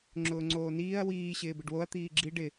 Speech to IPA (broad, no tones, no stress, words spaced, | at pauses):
ŋ͡ǁʊːŋ͡ǀoːniːɐ̯ wiː ɕɪːbɪɖwoɐ̯ t̪iːɡ͡ǁi ɖɪ